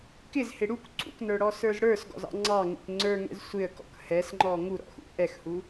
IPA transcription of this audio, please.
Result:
k ɪ z h ɪ ɽ u k ǀ ṵ k n ə˞ ɽ ɔ s ə˞ z ɽ ə˞ s ɡ ɔ̰ z ɑ̰ ŋ͡ǀ ɑ ŋ ṵ ʈ ŋ͡ǀ ə˞ ŋ ɛ̰ z sʷ ɪ ə̯ k ɔ̰ k h ɛ s ŋ͡ǃ ɔ ŋ u ɾ ɔ̰ x ṵ ʔ ɛ x h u

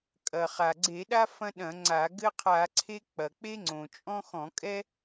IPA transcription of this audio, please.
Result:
kʼ ɐ˩ χ a˩ ɡ͡ǀ e˧˩˧ ɗ a˦ f ɐ̃˦ ɗ ɐ̃˧˩˧ ŋ͡ǀ a˧˩˧ ɡ ɘ˦ qʰ a˧˩˧ ǀʰ e˦ k͡p ɐ˩ k͡p e˦ ŋ͡ǀ õ˩ t͡ʃʼ ɔ̃˦ x ɔ̃˧˩˧ kʼ ɛ˦

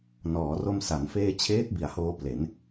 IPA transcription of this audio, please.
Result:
n ɔː˩˦ r o˧ m s a˩˦ n f eː˧ t͡ɕʰ eː˦˥ t̚ b i˨˩ a̯ h oː˧ p l e˩˦ n

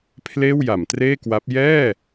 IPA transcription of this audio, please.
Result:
pʰ l eː˥˩ w j a˩˦ m t r eː˥˩ k w a˦˥ p̚ j ɛː˥˩

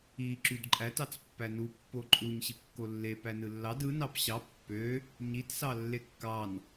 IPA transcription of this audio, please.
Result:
i ǁ y d ǃʼ æ t ɑ t͡s pː æ n u pː o ǃʼ u ɲ ɕ i p kː o lː e p æ n ɯ lː ɑ d ɯ n ɑ p ɕ ɑ pː ø | ɲ i t s ɑ lː e kː ɑ n

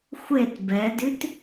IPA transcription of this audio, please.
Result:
xʷ e t b ɛ d y t

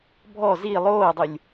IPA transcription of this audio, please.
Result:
bʱ ɔ z i lˠ oː dˤ u lʲ

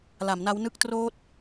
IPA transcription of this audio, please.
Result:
l a˩˦ m n a˦˥ w n ɯ˥˩ k̚ t r oː˦˥ t̚

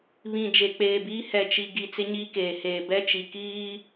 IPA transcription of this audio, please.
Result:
β ĩ˨ d͡ʒ e˨ k͡p eː˨ b iː˦ h ɛ˨ t͡ʃ i˨ ɡ i˨ t͡s ɪ˦ ɲ iː˦ k eː˨ h eː˨ b ɛ˦ t͡ʃ i˨ k iː˦

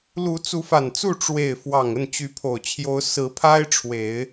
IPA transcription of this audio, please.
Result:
l u˨˦ t͡s u˨˦ f a˨˩ n t͡s u˥˨ ʈ͡ʂ w e˥˨ ɪ̯ f w ɑ˨˩ ŋ ə˥˨ n t͡ɕ y˨˦ pʰ o˨˩ ʊ̯ t͡ɕʰ j o˦ ʊ̯ s ɹ̩˨˦ pʰ a˦ ɪ̯ ʈ͡ʂʰ w e˨˦ ɪ̯

